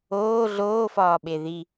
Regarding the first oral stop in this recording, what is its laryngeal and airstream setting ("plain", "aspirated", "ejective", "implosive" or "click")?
implosive